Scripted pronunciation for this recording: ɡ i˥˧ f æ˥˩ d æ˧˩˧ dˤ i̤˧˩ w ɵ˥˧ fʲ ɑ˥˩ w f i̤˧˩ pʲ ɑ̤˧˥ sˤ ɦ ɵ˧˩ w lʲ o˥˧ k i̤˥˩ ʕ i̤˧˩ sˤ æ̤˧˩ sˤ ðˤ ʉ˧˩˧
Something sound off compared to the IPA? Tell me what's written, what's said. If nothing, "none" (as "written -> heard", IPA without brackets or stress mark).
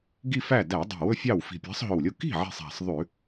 none